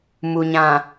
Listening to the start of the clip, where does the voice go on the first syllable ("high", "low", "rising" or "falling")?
low